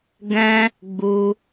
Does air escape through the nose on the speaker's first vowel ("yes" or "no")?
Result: yes